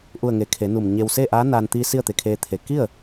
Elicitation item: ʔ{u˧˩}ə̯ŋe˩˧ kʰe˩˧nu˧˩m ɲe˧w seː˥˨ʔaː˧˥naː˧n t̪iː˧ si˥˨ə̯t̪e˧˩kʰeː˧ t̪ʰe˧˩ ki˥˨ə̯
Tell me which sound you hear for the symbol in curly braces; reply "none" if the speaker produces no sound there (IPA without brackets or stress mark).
u˧˩